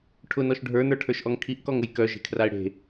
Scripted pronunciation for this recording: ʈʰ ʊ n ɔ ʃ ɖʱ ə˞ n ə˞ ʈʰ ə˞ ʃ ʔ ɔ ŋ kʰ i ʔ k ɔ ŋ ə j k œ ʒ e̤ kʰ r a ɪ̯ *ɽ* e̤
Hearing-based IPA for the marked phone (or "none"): ɽ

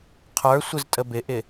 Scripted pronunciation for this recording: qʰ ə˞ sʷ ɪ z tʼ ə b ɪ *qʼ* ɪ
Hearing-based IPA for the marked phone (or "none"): ʔ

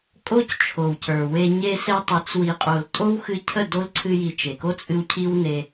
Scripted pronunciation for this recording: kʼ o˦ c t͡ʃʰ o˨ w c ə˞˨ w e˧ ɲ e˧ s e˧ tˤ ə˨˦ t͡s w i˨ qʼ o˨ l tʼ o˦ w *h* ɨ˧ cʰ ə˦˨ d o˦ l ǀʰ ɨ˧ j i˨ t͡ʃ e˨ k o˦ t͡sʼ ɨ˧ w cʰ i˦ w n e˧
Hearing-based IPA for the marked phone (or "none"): x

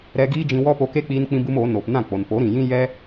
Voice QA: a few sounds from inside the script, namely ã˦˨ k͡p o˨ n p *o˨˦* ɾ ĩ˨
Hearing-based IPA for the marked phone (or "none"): o˨˦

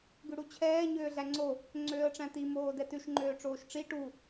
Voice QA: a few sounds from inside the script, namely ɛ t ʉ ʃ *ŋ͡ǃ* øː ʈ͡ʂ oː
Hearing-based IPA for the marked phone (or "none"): ŋ͡ǃ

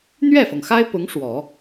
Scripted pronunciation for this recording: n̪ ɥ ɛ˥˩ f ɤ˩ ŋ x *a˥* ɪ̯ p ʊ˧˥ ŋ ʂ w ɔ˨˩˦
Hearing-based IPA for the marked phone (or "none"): a˥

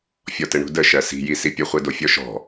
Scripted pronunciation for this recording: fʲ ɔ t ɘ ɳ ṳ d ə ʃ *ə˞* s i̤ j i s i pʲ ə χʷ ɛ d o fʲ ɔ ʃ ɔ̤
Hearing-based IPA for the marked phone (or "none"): ɜ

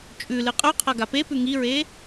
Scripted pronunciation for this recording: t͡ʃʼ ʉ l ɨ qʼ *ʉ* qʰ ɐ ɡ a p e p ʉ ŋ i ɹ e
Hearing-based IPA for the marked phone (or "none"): ʉ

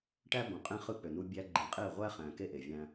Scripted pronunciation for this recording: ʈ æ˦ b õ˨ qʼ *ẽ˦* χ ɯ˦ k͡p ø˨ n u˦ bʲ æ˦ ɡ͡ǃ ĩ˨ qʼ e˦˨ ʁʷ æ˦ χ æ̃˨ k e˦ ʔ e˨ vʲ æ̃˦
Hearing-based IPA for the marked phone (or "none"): ẽ˦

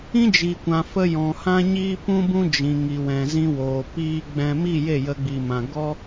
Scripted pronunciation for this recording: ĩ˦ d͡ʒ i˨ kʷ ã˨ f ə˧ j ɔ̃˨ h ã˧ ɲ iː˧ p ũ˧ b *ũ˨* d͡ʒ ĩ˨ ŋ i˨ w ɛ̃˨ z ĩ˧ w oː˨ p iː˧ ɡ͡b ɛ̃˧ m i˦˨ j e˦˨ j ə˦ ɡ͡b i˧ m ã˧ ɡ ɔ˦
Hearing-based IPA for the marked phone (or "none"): ũ˧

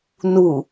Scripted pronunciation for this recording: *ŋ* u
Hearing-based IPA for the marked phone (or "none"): n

